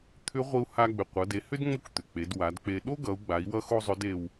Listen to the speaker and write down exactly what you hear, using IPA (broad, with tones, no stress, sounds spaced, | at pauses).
t̪ʰ ʏ˧˥ ʁʷ i˧ u̯ h a˧ ɡ͡b ʏ˩ qʷ ʌ˩˧ d e˩˧ h ʏ˥ d ŋ͡m o˥ k t̪ ʏ˩ k͡p e˩˧ d w a˩˧ d k͡p e˧ ɗ o˥ ɡ ʌ˩˧ u̯ ɡ͡b a˩˧ i̯ w ʌ˥ x o˥ zˤ ʏ˧˥ d e˧ w